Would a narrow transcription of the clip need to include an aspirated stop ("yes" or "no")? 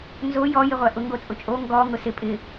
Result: no